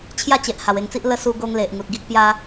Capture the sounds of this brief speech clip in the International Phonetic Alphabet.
t͡ɕʰ j a˥˧ t͡ɕ e˨ ʔ h a˨˩ w e˧ ŋ t͡s i˦ ʔ l ə˧ s u˧ ɡ o˧ ŋ l e˨ ʔ ŋ u˨ t̚ ɡ i˦ k̚ p j a˦

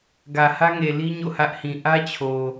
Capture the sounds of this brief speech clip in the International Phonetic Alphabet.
ɡ ä˨ h ä˦ ŋ e˨ l i˦ ɲ o̰˦˨ h ä˦ ʔ h ĩ˨ ʔ ä˦ t͡ɕʰ o˨

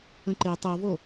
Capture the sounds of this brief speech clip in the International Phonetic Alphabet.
ə̃ ǃ e tˤ o v o

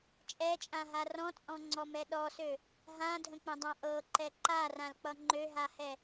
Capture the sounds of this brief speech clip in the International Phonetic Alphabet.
t͡ʃʼ ɛ t͡ʃʼ ã ɦ a r ɔ̃ t͡sʼ ɔ̃ ŋ͡ǀ ɔ m ɛ ɗ ɔ s ø | ɦ ã dʱ ə̃ k͡p ə̃ dˤ ã ʔ ɤ ǃ ɛ ǃ a r ã l k͡p ʌ ŋ͡ǃ ø ɦ a h ɛ

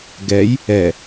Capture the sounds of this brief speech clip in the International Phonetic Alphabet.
ɡ ɛ j | ɛ

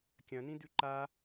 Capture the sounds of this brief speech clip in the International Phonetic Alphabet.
kʲ ɐ̃ n ĩ d ʉ ǃ a

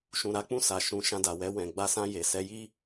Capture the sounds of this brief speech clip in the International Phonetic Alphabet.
ʃ ũ˨ ɾ a˧ k͡p ũ˧ s a˨ ʃ ũ˨ ʃ ã˧ d a˨ w ɛ˧ w ɛ̃˨ ɡ͡b a˧ s ã˧ j e˨ s ɛ˧ j i˦

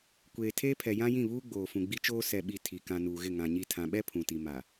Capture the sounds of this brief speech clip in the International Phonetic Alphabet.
kʷ eː˨ tʰ eː˦ pʰ ɛ˨ j ã˦ j ĩ˦˨ β uː˦ ɡ͡b oː˨ f ũ˨ ɡ͡b i˦ t͡ʃ oː˦ s ɛ˨ ɓ i˨ tʰ i˨ k ã˨ n uː˨ ɣ ɪ˦˨ ŋ ã˨ ɲ i˦˨ tʰ ã˨ ɓ ɛ˦ pʰ ũ˨ t i˨ m a˨

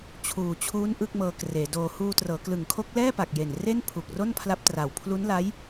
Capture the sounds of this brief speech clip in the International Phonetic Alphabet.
t͡ɕʰ uː˨˩ t͡ɕʰ uː˦˥ n ʔ ɯ˥˩ k̚ m ɤː˧ k r eː˩˦ d oː˧ h uː˧ t r ɤː˩˦ k l ɯ˨˩ ŋ kʰ o˦˥ k̚ l ɛː˥˩ p a˨˩ k̚ j e˨˩ n r e˥˩ n pʰ u˨˩ k̚ r o˥˩ n pʰ l a˦˥ p̚ t r a˨˩ w pʰ l u˦˥ n l a˦˥ j

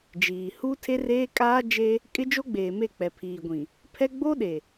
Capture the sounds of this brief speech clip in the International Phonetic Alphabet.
d͡ʒ iː˨ h u˦ tʰ e˦ r eː˦ kʼ aː˦ d͡ʒ e˦ | kʼ ɪ˦ d͡ʒ o˦ ɡ͡b eː˨ m e˦˨ k͡p ɛ˨ pʰ iː˨ ɡʷ ĩ˨ | pʰ ɛ˦ ɡ͡b o˦ ɗ e˨

